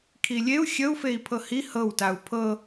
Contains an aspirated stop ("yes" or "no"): yes